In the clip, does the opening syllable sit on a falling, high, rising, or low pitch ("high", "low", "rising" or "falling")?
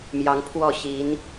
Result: rising